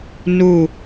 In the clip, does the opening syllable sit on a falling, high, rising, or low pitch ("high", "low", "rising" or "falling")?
falling